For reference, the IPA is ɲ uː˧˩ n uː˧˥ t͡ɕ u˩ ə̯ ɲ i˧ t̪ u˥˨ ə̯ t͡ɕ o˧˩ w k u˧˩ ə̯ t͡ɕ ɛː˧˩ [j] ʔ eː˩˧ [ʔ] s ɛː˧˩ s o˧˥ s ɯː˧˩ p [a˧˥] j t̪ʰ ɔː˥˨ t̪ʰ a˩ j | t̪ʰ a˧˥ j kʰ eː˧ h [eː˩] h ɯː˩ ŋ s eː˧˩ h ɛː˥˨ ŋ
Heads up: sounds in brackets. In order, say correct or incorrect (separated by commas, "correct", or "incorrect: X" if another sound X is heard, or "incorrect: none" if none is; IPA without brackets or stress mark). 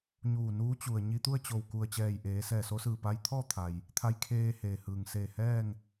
correct, incorrect: none, correct, correct